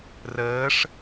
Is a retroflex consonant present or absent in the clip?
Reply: present